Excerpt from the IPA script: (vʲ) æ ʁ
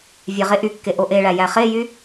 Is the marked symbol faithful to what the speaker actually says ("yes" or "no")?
yes